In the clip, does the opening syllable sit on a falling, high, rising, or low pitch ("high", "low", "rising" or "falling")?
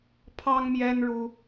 high